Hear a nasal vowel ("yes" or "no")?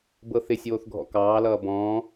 yes